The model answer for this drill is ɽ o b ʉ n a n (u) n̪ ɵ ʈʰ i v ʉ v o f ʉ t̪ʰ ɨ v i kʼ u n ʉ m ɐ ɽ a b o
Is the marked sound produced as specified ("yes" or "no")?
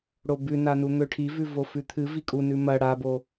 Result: yes